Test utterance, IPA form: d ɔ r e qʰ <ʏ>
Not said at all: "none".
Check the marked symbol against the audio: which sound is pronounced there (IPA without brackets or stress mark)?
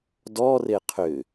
ʏ